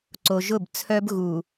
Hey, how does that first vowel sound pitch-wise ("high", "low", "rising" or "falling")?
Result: low